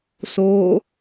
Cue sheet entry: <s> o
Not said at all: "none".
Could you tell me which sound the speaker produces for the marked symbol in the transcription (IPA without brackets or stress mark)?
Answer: s